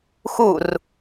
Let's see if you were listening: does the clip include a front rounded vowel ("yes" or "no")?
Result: no